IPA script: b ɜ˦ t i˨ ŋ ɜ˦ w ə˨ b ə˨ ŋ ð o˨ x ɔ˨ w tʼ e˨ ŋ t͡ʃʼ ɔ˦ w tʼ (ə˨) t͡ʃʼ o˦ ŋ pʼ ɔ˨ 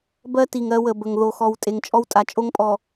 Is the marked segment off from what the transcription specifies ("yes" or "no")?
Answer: yes